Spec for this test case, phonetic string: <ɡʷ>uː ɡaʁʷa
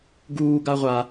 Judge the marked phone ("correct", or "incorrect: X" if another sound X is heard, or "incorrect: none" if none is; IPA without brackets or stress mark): incorrect: ɡ